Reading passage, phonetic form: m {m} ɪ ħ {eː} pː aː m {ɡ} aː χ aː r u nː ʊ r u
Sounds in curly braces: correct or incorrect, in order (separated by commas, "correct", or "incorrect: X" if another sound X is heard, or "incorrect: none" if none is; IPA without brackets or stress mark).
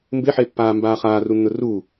incorrect: b, incorrect: e, incorrect: b